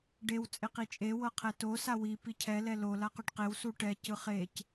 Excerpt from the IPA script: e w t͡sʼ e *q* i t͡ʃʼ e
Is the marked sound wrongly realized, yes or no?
no